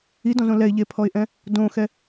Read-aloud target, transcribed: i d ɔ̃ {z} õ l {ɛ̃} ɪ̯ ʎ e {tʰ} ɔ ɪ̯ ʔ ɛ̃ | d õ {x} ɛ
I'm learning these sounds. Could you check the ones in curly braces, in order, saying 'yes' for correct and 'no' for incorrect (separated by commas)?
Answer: yes, no, no, yes